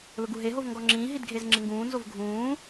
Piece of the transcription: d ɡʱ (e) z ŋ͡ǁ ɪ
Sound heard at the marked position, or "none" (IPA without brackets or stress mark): e